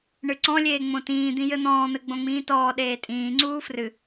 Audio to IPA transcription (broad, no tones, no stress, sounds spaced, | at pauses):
ɳ ɨ ǀ ɔ̃ lʲ eː ŋ͡m õ t ĩː d̪ ĩ j ɘ n̪ ɔ̃ː n̪ ɘ ɡ͡b õ ŋ͡m ĩː t ɔː ɗ eː tʼ ĩː ŋ͡ǀ uː f r ɨ